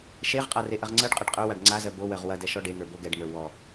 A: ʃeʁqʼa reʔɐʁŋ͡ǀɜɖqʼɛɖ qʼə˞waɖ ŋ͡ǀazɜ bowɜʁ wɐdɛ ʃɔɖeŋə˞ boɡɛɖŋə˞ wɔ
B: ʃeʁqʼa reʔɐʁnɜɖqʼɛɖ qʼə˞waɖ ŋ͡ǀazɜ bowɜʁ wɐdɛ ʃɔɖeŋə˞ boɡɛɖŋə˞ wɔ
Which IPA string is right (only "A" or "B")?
A